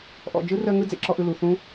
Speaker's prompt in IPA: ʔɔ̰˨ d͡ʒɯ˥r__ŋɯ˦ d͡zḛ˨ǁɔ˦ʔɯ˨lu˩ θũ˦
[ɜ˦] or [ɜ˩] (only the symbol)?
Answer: ɜ˦